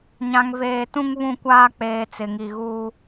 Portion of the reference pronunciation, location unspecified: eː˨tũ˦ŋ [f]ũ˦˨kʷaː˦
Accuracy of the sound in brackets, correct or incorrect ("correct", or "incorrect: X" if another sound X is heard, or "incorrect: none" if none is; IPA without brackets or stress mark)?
incorrect: β